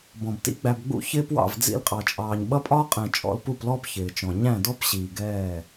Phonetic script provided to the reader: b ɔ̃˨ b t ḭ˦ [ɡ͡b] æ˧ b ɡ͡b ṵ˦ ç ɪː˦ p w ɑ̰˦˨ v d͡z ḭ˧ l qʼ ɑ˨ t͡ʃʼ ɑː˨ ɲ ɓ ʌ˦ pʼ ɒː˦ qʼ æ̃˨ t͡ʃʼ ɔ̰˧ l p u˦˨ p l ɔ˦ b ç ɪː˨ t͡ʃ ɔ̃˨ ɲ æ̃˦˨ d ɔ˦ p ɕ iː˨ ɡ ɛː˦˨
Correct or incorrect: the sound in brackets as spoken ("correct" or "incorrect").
correct